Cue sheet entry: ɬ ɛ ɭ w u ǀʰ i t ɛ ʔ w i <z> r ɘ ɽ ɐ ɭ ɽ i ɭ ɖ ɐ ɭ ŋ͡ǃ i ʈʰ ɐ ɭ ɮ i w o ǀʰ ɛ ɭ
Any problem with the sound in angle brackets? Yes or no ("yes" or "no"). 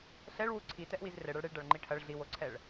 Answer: no